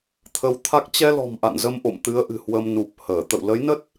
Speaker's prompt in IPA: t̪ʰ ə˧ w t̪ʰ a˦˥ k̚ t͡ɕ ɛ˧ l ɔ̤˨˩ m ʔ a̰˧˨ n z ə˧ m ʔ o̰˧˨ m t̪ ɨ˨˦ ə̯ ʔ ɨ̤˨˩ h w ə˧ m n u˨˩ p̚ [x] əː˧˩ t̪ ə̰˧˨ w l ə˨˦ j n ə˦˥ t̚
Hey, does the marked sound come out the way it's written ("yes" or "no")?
no